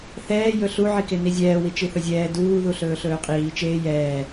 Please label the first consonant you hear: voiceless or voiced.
voiceless